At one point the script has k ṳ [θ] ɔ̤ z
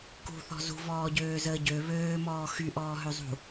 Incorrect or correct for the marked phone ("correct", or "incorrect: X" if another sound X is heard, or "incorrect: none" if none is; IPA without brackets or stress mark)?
correct